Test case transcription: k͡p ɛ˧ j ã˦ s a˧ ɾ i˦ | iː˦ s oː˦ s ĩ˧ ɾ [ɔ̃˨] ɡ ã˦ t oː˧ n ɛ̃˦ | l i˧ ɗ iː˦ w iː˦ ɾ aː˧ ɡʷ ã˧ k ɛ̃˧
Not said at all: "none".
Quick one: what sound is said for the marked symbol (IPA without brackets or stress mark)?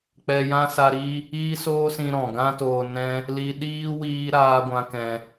ɔ̃˨